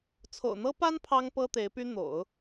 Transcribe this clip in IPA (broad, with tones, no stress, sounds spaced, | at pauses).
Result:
t͡sʰ o̰˨˩ ʊ̯ n̪ ɤ˥ p a˥ n pʰ ɑ˥ ŋ p ɤ˥ t̪ e˧˥ ɪ̯ p y˥ n̪ o̰˨˩˦ ʊ̯